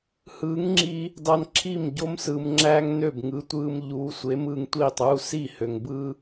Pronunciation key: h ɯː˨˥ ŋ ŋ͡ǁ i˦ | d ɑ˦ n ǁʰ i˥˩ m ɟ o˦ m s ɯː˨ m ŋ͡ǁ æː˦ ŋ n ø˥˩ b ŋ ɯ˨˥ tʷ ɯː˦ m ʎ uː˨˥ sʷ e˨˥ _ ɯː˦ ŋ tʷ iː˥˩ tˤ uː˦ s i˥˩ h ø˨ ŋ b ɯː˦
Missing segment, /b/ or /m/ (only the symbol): m